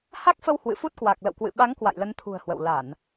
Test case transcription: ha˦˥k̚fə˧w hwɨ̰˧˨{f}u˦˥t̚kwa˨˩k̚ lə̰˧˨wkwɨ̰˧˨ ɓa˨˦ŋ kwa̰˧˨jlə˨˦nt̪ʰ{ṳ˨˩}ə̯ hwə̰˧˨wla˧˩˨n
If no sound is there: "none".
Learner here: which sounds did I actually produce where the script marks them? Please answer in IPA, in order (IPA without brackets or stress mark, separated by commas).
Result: f, ṳ˨˩